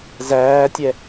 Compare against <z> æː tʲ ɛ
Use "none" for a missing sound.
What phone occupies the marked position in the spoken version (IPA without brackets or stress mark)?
z